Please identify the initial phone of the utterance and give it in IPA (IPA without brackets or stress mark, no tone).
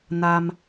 n